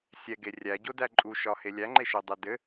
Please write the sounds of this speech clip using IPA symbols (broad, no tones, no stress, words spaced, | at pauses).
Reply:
sʲɛɡe rʲæɟodæ ǃʼuʃɒhe lʲæŋ͡ǃeʃodˤɛ dɘ